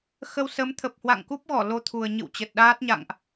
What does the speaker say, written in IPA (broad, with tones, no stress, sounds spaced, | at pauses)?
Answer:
x ə˧ w s ə˨˦ m t̪ʰ ə˨˩ p̚ h w a̰˧˨ ŋ k u˦˥ p̚ ɣ ɔ˧˩ l o˧ t̪ʰ u˨˩ ə̯ ɲ ɨ̰˧˨ w t͡ɕ ə˨˩ t̚ ɗ aː˦˥ t̚ ɲ a̰˧˨ ŋ ʔ